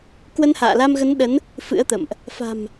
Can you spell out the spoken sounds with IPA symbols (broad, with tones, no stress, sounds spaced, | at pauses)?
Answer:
k w ə˧ n h a̰ː˧˨ l a˧ m ɣ ə˨˦ n ɗ ə˨˦ n | f ɨ̰˧˥ ə̯ t̪ ə̰˧˨ m ʔ | f a̤˨˩ m